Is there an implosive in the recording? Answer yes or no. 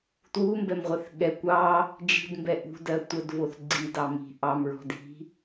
yes